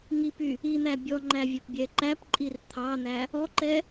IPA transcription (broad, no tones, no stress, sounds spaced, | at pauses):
ŋ i p y | i n̪ æ bʲ ɔ ŋ͡ǃ æ vʲ ɵ p bʲ ɛ ǃ æ p ǃʼ i r t̪ʰ ɑ n̪ æ | ɔ ǃ ɛ